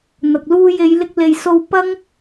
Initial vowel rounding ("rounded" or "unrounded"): unrounded